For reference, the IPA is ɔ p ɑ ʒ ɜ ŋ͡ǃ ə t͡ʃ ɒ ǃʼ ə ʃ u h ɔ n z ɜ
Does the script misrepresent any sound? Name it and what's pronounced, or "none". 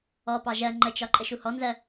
none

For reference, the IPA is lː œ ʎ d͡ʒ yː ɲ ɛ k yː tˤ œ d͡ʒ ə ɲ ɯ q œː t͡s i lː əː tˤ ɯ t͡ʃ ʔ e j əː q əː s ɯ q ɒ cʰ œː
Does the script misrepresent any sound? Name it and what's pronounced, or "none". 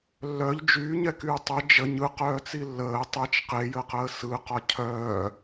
ʔ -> q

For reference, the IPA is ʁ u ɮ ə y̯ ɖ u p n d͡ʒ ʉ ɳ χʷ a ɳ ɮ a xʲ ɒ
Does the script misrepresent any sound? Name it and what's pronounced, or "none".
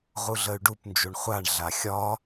ʉ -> u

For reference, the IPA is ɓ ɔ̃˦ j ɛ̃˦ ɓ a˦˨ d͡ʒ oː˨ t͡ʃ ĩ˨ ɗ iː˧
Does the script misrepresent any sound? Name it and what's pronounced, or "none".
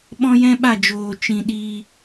none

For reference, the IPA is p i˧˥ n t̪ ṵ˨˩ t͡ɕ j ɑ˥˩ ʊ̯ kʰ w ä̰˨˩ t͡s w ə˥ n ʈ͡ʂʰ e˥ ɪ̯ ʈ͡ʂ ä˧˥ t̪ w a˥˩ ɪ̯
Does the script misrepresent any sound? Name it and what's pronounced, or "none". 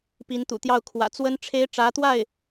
t͡ɕ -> t̪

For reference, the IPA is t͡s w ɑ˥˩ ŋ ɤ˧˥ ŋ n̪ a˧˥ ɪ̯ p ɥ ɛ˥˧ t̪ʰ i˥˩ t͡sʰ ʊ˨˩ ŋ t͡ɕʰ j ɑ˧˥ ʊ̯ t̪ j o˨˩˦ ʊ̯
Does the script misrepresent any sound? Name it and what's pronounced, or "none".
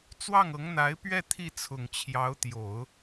none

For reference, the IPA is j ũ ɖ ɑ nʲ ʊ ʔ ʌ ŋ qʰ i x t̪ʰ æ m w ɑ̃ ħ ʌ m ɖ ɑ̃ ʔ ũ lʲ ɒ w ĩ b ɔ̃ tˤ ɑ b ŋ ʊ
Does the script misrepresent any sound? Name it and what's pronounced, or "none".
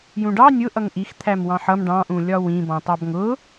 qʰ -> ʔ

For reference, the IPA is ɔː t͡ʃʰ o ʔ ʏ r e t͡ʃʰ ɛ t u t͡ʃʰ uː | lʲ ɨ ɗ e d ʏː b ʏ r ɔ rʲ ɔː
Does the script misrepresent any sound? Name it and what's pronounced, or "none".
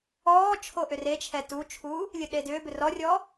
none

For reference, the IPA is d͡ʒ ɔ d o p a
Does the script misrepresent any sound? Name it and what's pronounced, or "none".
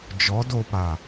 none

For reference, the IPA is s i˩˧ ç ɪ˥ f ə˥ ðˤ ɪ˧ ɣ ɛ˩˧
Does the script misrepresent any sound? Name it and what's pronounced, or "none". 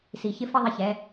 ɣ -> ç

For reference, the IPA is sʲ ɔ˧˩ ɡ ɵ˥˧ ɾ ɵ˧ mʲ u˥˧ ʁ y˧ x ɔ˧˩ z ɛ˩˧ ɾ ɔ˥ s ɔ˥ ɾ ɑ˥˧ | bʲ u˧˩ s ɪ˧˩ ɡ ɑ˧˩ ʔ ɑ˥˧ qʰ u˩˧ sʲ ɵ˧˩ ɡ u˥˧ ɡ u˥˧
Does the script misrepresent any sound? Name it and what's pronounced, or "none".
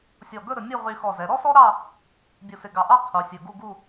none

